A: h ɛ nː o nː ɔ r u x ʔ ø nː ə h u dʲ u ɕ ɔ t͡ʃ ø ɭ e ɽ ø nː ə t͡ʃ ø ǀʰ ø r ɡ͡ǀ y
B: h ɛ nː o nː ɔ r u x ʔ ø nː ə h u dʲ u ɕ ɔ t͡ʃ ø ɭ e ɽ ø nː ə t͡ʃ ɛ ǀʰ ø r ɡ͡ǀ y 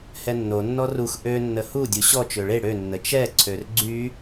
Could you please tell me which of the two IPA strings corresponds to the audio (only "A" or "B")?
B